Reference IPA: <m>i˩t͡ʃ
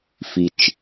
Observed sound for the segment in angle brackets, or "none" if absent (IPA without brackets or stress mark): f